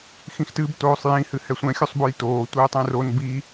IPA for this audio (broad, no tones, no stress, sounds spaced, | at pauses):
x ĩ x t ɨ b t oː sˤ j ĩ h ɨ h ɛ sʷ ɛ̃ xʲ o sˤ b o j t oː tʷ ɘː tˤ ɛ̃ r o n b i